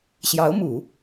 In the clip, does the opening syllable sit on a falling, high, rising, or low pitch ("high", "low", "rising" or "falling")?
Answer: rising